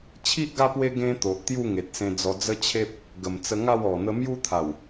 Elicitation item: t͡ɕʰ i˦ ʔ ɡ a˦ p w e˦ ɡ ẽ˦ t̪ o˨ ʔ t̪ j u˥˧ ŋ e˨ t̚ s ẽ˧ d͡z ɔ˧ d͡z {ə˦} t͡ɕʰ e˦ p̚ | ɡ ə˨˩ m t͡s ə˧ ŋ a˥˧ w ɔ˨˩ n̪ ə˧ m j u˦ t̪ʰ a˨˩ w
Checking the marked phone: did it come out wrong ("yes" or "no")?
no